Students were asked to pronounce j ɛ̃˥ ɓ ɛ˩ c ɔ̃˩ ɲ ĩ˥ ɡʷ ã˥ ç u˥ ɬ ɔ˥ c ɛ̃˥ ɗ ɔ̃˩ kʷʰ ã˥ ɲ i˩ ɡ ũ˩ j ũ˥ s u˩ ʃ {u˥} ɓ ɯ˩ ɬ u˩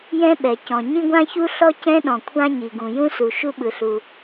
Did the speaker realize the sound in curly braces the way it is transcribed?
yes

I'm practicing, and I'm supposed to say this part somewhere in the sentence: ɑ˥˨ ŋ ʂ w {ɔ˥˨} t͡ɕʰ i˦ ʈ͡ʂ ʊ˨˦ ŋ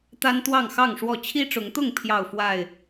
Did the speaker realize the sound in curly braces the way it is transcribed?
yes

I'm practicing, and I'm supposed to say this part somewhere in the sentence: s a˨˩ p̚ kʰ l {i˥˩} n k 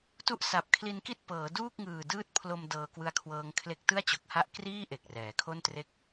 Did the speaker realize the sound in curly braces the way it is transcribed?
no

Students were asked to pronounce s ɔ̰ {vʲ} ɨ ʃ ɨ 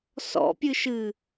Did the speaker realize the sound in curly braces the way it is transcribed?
no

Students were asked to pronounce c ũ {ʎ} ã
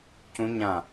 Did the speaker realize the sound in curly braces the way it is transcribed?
no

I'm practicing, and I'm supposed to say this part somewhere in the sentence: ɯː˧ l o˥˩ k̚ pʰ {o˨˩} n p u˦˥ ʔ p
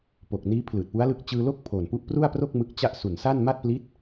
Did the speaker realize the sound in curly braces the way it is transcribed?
yes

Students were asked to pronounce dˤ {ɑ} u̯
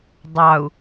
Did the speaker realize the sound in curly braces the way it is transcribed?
yes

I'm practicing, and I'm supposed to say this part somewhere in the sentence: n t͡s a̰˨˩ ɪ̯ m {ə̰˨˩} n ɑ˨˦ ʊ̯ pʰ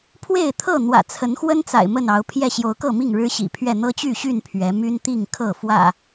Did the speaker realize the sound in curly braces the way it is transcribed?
no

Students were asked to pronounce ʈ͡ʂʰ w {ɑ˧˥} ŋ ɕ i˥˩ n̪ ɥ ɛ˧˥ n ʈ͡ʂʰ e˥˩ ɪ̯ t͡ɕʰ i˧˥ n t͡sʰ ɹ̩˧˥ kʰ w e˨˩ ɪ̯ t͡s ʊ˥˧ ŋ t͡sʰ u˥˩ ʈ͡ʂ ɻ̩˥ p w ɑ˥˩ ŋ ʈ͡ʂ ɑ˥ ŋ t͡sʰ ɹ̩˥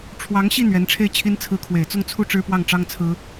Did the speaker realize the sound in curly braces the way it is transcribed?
yes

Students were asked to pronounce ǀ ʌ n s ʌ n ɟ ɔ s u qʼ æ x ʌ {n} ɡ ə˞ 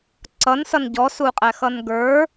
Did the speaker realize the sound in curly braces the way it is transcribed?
yes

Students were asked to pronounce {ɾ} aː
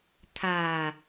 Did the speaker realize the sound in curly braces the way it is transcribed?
no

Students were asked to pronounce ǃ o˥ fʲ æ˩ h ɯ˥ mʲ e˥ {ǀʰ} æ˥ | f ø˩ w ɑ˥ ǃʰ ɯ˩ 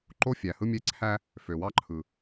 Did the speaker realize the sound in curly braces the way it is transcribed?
yes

